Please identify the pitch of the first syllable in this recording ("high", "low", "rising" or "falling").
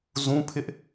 high